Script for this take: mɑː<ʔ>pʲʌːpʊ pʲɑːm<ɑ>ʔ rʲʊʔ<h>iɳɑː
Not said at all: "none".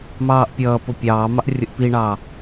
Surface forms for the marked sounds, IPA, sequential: ʔ, ɑ, p

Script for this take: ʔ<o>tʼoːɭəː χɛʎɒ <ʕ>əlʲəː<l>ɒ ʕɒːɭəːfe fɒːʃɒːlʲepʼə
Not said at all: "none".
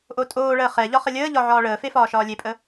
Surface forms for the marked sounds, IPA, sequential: o, χ, ʎ

